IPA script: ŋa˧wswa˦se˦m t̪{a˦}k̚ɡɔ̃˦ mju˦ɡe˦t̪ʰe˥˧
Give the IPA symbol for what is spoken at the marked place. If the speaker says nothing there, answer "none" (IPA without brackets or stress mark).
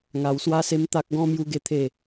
a˦